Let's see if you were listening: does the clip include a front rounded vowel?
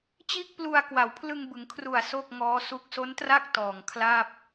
no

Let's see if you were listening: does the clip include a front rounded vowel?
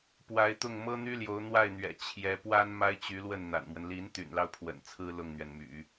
yes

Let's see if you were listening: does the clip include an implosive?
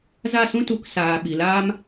yes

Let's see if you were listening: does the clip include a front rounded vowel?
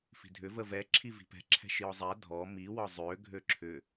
yes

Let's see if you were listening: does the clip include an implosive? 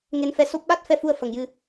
yes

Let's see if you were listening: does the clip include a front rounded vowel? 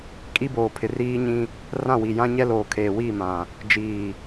no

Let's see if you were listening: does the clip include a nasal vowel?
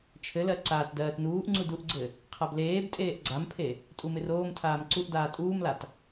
no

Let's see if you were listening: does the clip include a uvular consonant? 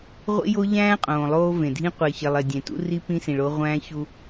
yes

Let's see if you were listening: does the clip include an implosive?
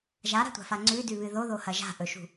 no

